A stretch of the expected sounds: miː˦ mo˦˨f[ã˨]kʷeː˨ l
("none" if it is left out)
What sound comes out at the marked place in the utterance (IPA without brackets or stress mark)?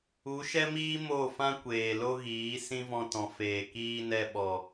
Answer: ã˦